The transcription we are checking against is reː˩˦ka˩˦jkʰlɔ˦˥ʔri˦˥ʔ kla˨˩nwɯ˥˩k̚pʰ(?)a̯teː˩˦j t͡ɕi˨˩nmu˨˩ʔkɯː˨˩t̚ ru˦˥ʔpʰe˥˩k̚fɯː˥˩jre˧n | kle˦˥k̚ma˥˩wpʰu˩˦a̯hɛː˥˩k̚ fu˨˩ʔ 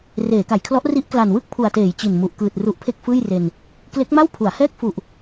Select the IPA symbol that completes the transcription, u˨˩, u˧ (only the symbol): u˨˩